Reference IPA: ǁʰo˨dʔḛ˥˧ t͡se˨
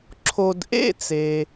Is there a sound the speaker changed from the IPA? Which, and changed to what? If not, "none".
none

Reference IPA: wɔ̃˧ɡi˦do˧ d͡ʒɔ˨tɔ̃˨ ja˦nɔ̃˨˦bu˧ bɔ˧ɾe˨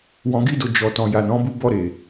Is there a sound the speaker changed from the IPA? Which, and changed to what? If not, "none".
a˦ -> a˨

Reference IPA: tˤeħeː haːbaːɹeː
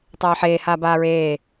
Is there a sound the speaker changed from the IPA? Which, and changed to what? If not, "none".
e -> eː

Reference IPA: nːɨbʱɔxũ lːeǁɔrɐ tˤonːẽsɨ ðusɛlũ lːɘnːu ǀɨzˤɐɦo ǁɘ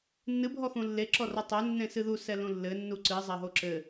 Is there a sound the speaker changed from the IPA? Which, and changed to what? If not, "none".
none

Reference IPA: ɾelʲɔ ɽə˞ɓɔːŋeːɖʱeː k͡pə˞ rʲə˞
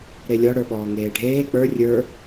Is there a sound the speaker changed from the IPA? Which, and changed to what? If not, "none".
none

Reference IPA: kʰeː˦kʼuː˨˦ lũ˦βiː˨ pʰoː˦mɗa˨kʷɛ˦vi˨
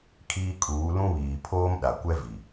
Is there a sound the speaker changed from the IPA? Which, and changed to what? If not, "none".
eː˦ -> iː˦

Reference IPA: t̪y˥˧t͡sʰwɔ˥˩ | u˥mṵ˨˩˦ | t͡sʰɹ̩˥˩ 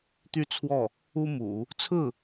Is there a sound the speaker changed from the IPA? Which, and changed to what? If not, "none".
none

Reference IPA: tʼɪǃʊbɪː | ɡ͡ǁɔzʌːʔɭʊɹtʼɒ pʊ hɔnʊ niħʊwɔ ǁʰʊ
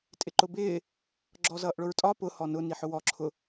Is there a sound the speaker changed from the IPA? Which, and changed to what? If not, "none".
none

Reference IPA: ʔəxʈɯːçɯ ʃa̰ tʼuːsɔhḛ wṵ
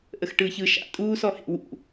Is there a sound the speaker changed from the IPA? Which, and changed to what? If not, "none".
none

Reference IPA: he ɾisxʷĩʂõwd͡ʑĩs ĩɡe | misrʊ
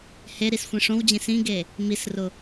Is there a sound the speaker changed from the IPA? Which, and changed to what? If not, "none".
none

